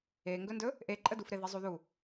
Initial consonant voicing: voiced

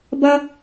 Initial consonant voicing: voiced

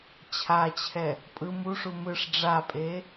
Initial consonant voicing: voiceless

